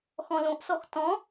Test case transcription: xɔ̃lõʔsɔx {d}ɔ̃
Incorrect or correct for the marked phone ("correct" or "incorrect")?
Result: incorrect